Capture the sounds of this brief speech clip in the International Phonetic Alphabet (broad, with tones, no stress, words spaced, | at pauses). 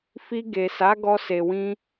fi˧ɡe˨sa˨˦ ɡɔ˧se˨wĩ˧